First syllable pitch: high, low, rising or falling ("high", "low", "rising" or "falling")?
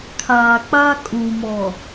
low